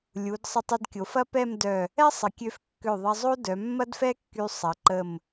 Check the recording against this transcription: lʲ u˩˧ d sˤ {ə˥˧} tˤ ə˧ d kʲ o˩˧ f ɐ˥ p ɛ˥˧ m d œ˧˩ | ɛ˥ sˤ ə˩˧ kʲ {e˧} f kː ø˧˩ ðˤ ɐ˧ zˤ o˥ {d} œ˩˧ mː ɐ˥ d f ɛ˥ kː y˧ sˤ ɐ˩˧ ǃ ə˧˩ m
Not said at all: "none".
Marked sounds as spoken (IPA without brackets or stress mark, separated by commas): ə˧, ø˧, d